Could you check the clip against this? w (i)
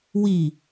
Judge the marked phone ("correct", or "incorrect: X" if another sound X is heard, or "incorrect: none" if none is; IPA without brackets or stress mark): correct